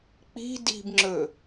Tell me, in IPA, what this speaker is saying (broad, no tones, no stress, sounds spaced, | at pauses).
k͡p i̤ d i̤ b ŋ͡ǁ ɵ